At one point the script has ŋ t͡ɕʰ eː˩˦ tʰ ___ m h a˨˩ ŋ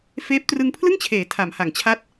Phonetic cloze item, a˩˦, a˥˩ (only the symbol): a˩˦